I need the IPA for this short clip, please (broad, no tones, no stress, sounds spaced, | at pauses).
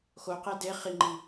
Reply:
x o q e d e χ i ŋ͡ǃ i